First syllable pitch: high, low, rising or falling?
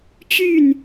falling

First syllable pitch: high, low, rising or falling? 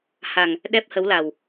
low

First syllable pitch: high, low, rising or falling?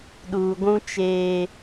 low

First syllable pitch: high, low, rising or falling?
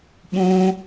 high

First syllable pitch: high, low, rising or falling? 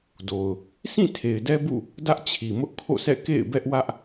low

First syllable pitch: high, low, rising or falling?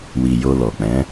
low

